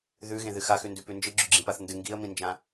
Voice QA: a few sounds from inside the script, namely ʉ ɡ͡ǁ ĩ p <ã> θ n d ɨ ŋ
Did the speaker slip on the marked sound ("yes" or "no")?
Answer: yes